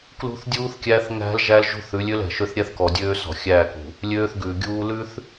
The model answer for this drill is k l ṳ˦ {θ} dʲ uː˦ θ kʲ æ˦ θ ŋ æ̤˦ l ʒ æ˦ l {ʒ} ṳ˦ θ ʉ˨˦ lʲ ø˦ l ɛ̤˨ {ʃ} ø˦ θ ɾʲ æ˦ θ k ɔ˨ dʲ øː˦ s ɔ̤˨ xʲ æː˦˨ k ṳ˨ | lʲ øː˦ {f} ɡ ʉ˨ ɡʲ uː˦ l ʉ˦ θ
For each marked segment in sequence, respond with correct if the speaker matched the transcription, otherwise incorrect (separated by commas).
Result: correct, correct, correct, incorrect